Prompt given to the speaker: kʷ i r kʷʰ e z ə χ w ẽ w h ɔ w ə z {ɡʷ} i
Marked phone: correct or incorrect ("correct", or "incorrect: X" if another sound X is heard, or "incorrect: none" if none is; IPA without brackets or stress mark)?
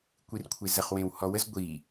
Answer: correct